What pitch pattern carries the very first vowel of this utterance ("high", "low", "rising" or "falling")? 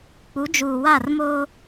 rising